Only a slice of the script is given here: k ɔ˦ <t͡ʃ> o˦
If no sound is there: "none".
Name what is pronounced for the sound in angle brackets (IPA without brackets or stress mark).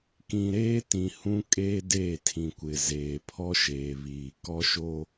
ʃ